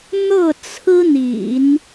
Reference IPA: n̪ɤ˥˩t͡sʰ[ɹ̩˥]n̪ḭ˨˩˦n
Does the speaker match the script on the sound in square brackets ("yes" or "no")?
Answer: yes